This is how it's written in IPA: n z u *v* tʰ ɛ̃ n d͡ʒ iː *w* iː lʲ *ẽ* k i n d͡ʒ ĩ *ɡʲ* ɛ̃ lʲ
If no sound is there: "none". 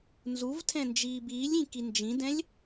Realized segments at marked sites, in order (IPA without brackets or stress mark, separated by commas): v, b, ĩ, d